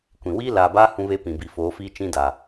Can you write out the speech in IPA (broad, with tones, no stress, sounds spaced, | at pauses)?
kʷ ĩ˨ w iː˦ l aː˨ b aː˦ h ũ˦ β e˦ p ĩ˨ b i˨ f oː˨˦ f iː˦ t͡ʃ ĩ˦ d a˨